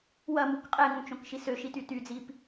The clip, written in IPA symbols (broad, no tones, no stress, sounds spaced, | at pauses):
w ɐ m u k qʼ ɛ ŋ ũ t͡ʃ õ k ʃ i s ø ʃ i t y t y d͡z i p